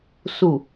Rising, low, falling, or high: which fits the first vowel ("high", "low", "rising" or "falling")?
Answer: low